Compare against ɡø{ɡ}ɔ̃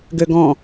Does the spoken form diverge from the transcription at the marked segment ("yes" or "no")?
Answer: no